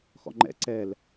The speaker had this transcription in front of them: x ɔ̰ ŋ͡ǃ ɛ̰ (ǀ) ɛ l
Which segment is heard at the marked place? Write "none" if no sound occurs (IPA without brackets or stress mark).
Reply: ǀ